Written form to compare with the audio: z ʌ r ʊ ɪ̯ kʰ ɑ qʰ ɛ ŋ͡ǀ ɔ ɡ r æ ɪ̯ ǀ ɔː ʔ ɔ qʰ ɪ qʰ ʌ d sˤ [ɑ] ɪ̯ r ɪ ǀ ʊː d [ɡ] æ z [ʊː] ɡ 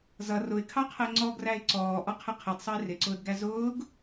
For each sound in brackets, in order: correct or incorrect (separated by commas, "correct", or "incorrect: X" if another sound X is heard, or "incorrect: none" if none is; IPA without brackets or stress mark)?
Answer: incorrect: ʌ, correct, correct